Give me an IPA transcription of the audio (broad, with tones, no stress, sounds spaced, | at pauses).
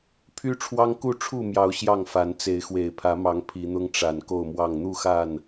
pʰ y˦ ʈ͡ʂʰ w ɑ˦ ŋ k u˥˨ ʈ͡ʂʰ u˥˨ m j ɑ˨˦ ʊ̯ ɕ j ɑ˥˨ ŋ f a˨˦ n t͡s e˨˦ ɪ̯ x w e˨˩ ɪ̯ pʰ ä˨˦ m ɑ˨˦ ŋ pʰ i˨˦ n̪ ʊ˦ ŋ ʈ͡ʂ a˨˩ n k o˥˨ ʊ̯ m w ɑ˥˨ ŋ n̪ u˥˨ x a˥˨ n